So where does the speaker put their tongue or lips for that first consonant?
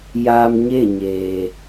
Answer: palate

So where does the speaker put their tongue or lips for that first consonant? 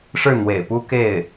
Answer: retroflex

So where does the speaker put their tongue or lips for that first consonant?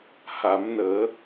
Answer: throat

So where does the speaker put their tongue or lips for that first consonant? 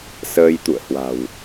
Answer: tongue tip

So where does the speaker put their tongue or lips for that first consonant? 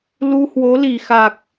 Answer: tongue tip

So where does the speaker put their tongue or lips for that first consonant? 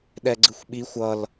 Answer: tongue tip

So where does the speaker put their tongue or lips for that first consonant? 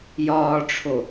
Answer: palate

